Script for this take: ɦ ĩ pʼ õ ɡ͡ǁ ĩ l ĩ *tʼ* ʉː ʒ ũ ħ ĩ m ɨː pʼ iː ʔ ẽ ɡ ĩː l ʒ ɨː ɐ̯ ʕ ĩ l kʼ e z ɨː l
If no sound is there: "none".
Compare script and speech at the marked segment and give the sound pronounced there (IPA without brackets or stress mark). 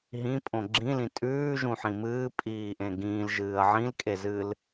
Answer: tʼ